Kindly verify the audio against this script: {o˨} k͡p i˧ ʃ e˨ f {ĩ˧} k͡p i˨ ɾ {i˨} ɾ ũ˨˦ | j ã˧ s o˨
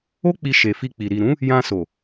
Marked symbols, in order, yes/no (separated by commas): no, no, yes